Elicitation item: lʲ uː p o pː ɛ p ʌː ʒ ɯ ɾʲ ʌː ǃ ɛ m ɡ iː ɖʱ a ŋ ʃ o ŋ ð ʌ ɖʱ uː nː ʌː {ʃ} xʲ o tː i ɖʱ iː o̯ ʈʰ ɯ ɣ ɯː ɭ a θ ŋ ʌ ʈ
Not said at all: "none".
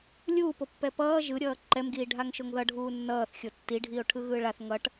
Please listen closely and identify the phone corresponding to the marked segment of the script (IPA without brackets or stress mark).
θ